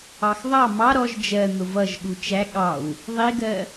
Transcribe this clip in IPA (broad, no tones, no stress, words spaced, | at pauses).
ɑxðˤɑ mɑ ɾɔʒ d͡ʒɜ n̪ʊvʌʒ ɠut͡ʃæ ɠɑw | ðˤiɡɜ